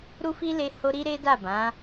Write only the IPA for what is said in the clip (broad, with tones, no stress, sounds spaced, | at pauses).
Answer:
ɾ u˦ f i˦ l e˦ h o˦ ɾ i˦ ɾ e˦ d a˦˨ b ã˨˦